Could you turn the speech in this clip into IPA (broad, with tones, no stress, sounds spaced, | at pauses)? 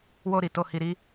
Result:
w o˧ ɾ i˨ t o˧ h i˧ ɾ i˦